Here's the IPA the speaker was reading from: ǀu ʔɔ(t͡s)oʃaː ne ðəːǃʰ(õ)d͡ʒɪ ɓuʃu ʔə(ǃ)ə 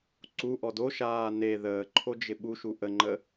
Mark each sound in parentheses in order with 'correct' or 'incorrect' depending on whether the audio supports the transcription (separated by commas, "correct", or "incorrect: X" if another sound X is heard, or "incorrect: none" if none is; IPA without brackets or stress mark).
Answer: incorrect: d, incorrect: o, incorrect: ŋ͡ǃ